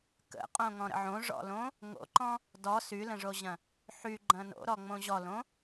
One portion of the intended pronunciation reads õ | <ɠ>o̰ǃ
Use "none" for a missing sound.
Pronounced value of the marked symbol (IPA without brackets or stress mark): ŋ